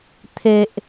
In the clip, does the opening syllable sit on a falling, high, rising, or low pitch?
low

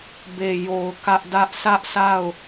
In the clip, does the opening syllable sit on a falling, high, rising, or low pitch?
low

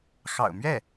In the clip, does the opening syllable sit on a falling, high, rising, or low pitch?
low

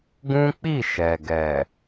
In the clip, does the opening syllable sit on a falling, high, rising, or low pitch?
high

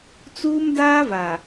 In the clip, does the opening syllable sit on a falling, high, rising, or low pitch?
high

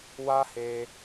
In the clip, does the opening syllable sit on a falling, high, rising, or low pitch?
high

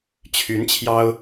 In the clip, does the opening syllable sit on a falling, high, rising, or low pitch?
rising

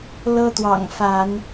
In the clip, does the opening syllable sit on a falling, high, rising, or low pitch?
high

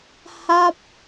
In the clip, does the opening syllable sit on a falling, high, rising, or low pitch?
falling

